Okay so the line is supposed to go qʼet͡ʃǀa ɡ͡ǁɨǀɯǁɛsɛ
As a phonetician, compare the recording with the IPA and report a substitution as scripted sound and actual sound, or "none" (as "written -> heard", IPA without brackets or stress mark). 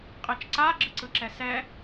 none